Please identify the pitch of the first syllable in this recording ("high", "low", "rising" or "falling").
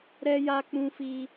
high